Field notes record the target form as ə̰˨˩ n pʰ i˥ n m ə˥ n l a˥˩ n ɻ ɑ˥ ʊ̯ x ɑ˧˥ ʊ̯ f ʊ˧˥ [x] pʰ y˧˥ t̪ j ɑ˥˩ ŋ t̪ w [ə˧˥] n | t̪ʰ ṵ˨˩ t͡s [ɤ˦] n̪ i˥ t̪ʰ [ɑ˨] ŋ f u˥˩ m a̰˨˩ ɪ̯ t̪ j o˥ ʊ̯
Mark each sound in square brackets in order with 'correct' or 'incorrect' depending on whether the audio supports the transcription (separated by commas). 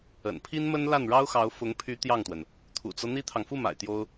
incorrect, incorrect, correct, correct